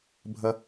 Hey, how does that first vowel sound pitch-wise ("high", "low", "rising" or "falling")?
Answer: high